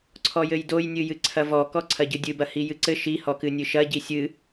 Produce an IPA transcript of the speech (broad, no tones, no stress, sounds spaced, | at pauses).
ǀʰ ɔ j ɘ j d o j nʲ ɨ j ɨ ǀʰ ɐ v ɔ k ɔ ǀʰ ɐ ɟ ɨ dʲ ɨ b ɐ h i j ɨ ǀ ɘ ʃ i h ɔ k ɨ nʲ ɨ ʃ ɐ ɟ i sʲ ɨ